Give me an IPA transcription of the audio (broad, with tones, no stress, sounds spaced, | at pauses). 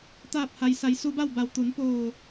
t̪ aː˧˩ p̚ h a˩ j s a˩˧ j s u˧˥ b a˥˨ w b a˧˩ w t̪ u˩˧ n p oː˧˩